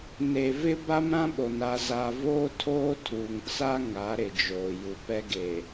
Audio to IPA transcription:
n e˨ v ɪ˦ b a˦ m ɾ ã˦ ɓ o˨ n a˨ z a˨ v oː˦ tʰ oː˦ tʰ uː˨ ŋ t͡s a˦ ŋ a˨˦ ɾ ɪ˨ d͡ʒ oː˨ j u˨ p ɛ˦ ɡ eː˨

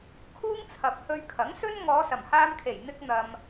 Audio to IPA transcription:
kʰ uː˥ ŋ t͡sʰ ɐ˨ p̚ h ɵ˧ ɥ kʰ ɐ˨˥ ŋ s ɵ˥ n ŋ ɔː˨˧ s ɐ˨˩ m h aː˧ m kʰ e˨˩ j n̪ ɪ˥ k̚ n̪ ɐ˧ m

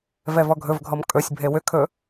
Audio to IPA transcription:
v ɛ v ɔ ɡʱ ɵ v ɡʱ ɔ m kʼ ɵ sʲ bʱ e w ʏ kʰ ɵ

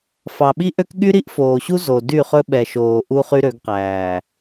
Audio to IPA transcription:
f ɑ˨ ɓ i˦ ʔ ø˦ k ɠ y˦ ɾ i˦ ʔ f oː˨ ɕ u˦ z o˨ d y˦˨ χ ɵ˦ ɓ ɛ˨ ʃ oː˨ ʔ u˦ χ y˦ ɾ ø˨˦ ɡ q æː˨

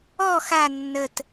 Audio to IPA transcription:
ɔ x a nː ə t

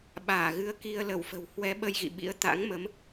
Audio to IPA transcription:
ɓ aː˧˩ ɣ ɨ˨˦ ə̯ k i˧ ə̯ l ə˧˩ w f ə̤˨˩ w h w ɛ˨˦ ɓ ə˧ j ɣ ḭ˧˨ ɓ ḭ˧˥ ə̯ t̪ a̰˧˥ ŋ m ə˨˦ m

